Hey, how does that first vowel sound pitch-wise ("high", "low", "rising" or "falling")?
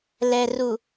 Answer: low